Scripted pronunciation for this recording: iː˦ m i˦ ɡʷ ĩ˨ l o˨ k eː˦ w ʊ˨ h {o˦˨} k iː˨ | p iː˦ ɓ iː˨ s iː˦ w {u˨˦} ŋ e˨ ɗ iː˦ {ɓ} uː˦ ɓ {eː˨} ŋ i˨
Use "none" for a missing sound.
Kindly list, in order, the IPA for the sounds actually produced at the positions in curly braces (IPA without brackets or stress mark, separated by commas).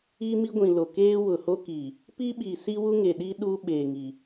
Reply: o˦, u˦, ɗ, eː˨